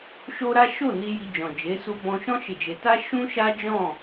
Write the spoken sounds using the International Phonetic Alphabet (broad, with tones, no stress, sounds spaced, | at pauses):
ʃ o˦ ɾ a˦ ʃ o˦˨ n i˧ j i˧ d͡ʒ ɔ̃˨ d͡ʒ e˨˦ s u˧ b ɔ̃˧ ʃ ɔ̃˦ ʃ e˦˨ d͡ʒ e˧ t a˦ ʃ ũ˦ ʃ a˦ d͡ʒ ɔ̃˦˨